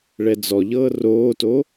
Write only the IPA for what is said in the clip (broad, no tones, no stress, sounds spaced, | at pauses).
ɭ ɛ d͡z ɔ ʎ ɤː r oː t o